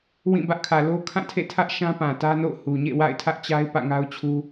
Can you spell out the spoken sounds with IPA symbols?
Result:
wĩ˦˨bä˦ʔ kʰä˨lo˦ kʰã˦˨tʰḛ˦˨tʰä˦ʔ ʃã˦pã˨tä˦no̰˦˨ʊ̯ hu˨ɲḛ˦˨wa̰˦˨ɪ̯ tʰä˦ʔt͡ɕa˦ɪ̯ pä̰˦˨ŋa˦ʊ̯t͡ɕʰu˦

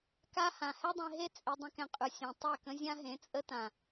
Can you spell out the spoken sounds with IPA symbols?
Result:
ka˦ hã˨hɛ˦dˤẽ˧ ɦe˦ t͡sʼe˧dˤə̃˦kɛ̃˧qʼʉ˨ sʲẽ˨ tˤɛ˦˨kə̃˦ zʲã˦ɦẽ˨˦t͡sʼə˦tã˨

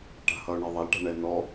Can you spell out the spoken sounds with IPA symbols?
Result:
ʈa̤hʌʊ̯ɳɛðˤɐl ʈa̤ɳɛnɔ

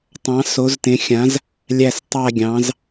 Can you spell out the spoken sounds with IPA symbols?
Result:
tˤɑ̃˨˥ so˨˥ztẽ˨˥xʲã˨˥z | lʲæ˥˧stˤæ˥˧ɡʲɑ̃˨˥z

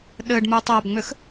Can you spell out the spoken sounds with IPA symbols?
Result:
ɗɘɖmu tˤabŋ͡mʏx

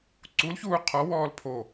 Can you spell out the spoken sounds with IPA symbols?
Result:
ǀulçuː qʰɔwɔːl pʰo

